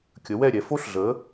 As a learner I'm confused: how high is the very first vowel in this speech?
mid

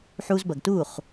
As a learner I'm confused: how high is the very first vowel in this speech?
high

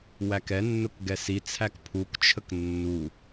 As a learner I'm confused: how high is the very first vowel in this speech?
low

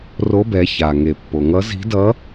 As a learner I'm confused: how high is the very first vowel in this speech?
mid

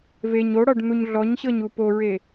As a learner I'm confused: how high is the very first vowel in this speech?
mid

